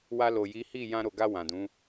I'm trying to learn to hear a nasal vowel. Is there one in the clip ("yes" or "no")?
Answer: yes